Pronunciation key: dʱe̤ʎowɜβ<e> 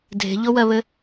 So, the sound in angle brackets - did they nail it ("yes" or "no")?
no